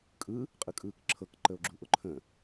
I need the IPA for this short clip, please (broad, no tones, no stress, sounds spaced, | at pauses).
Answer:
kʼ ɯ | qʼ ɯ kʼ ɯː k ǁʰ ɤ k ǃ ə o̯ ɡ͡ǁ u ʔ ʊ ǃʰ ə̃